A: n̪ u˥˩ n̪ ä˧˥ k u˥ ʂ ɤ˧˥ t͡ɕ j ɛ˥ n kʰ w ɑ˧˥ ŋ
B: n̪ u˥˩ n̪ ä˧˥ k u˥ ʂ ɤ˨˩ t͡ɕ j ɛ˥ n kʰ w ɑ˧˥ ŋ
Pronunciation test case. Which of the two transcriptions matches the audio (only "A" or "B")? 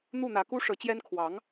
A